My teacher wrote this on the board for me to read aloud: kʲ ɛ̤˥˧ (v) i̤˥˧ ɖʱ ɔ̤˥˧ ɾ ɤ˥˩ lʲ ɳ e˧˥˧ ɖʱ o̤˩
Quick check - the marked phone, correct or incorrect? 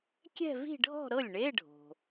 correct